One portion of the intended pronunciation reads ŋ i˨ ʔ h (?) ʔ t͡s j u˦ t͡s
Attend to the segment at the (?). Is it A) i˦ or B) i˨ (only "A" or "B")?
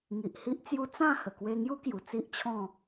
A